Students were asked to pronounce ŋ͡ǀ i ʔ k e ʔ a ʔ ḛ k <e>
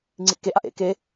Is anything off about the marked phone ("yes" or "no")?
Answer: no